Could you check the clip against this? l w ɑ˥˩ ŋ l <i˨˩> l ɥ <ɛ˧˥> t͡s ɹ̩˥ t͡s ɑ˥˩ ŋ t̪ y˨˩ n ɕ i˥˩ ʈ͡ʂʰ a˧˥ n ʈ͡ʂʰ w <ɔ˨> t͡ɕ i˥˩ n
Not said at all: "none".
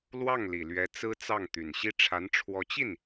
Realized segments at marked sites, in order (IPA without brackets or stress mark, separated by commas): i˨˩, ɛ˧˥, ɔ˧˥